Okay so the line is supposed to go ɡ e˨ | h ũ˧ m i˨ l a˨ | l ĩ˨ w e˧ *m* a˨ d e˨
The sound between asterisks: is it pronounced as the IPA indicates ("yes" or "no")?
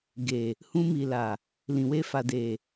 no